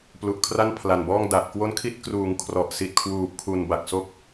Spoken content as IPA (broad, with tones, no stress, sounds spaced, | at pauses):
p l u˨˩ ʔ kʰ r a˥˩ n pʰ l a˨˩ n b ɔː˥˩ ŋ d a˨˩ ʔ k w o˦˥ n kʰ i˦˥ t̚ k r uː˩˦ ŋ kʰ r ɔ˨˩ ʔ s i˨˩ t̚ kʰ w uː˨˩ p̚ kʰ u˨˩ n b a˨˩ k̚ s o˥˩ k̚